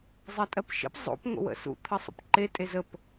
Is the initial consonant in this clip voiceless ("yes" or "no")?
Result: no